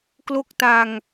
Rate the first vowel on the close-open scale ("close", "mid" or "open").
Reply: mid